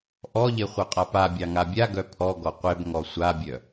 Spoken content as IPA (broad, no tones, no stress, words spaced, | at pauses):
ʔɔʎe χʷœqʼapabʲɑ ŋabʲaɡœ pʰɔɡɔ qʷebŋɔ sʷabʲœ